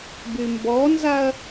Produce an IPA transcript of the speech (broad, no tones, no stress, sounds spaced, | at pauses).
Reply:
b y m b ɔ n z a ɐ̯